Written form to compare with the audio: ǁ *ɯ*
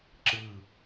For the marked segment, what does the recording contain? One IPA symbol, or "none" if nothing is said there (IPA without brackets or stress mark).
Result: ɯ